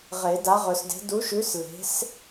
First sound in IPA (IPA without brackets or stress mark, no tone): ʁ